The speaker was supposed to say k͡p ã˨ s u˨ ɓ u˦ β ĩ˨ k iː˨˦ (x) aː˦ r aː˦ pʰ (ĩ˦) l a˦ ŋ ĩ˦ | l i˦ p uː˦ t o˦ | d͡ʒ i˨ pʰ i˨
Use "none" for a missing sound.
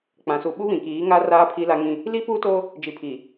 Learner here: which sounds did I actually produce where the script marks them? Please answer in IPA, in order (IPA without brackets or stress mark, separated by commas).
ŋ, i˦